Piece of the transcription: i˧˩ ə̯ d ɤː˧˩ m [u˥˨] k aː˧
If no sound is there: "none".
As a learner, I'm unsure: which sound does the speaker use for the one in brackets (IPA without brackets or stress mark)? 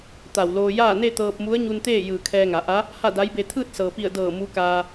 u˧˥